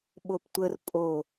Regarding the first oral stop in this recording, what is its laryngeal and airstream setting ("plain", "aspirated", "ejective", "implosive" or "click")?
implosive